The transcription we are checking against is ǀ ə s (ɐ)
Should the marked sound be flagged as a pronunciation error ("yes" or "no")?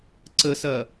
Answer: no